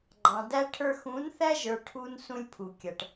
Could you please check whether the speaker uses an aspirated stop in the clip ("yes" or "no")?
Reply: yes